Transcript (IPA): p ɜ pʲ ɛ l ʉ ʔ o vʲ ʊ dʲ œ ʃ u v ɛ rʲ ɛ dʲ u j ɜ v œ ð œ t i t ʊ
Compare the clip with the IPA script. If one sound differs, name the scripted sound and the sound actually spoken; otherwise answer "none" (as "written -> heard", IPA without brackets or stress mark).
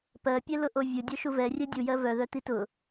ʉ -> ʊ